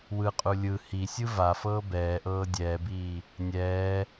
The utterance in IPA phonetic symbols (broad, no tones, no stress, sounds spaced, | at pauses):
w ɯ qʼ u lʲ ɯ h i sʲ ɯ v a f ɤː b ɛː ʔ ɤː dʲ ɛː b iː | nʲ ɛː